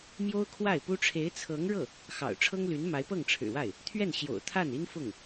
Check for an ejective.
absent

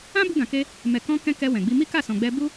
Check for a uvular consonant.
absent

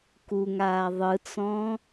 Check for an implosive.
absent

